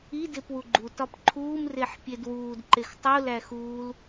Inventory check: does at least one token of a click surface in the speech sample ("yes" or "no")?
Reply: yes